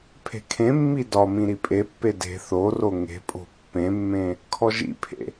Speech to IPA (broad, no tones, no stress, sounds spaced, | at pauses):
pʰ e̤ kʰ ẽ mː i d ɒ m ĩ ɾ i pʼ e pː e d e̤ θ o r o ŋ e̤ pʼ o̤ pː ẽ mː ẽ | kʰ ɔ ʒ ḭ pʰ ḛ